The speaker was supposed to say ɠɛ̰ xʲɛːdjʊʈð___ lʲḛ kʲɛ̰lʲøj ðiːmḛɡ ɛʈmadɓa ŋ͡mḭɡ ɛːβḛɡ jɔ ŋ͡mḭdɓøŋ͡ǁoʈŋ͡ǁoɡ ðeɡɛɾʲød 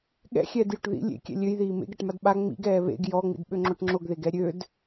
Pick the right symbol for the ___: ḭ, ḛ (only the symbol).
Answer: ḭ